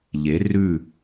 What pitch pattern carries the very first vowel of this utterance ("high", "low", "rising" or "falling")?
rising